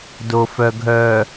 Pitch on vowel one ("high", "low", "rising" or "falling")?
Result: low